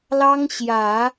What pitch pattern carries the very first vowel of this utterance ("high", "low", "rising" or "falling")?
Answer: high